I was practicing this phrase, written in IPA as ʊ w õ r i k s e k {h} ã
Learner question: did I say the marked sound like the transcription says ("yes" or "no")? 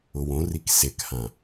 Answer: yes